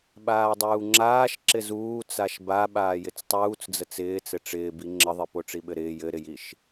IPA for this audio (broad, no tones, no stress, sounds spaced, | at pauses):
ɓ aː dˤ uː ŋ͡ǁ aː ʃ ǁ ɪ z uː t͡s a ʃ b a ɓ aː j ɪ t͡s tˤ uː t͡s d͡z ə t͡s ɪː t͡s ɘ ʈ͡ʂ ɪː b i ŋ͡ǁ ə ðˤ i p o ʈ͡ʂ i ɓ ɘ ɾ ɪː j ɘ ɾ ɪ j i ʃ